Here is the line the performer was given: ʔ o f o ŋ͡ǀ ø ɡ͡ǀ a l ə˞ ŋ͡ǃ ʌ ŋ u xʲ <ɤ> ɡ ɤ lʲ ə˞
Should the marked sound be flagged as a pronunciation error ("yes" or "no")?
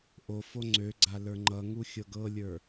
no